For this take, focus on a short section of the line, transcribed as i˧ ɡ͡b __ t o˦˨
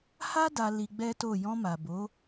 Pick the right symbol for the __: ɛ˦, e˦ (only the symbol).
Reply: ɛ˦